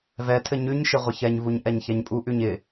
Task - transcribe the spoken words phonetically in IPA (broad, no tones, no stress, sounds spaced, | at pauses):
v ɛ tʰ ɘ ɲ ʉ ɲ ʃ ɪ ʁʷ ə ç ɛ ɲ v u ɲ ʔ ɛ ɲ ç ɛ ɲ pʼ u ʔ ʉ ɲ ɪ